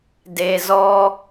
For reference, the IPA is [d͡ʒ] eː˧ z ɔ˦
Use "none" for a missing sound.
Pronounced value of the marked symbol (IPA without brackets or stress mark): d